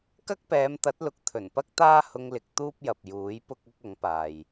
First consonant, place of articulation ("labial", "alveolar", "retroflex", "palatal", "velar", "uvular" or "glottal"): velar